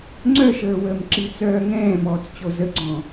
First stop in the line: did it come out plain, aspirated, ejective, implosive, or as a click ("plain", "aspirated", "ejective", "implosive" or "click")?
click